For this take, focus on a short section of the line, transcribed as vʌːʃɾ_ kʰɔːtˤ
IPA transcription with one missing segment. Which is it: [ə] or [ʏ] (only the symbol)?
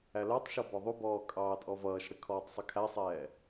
ə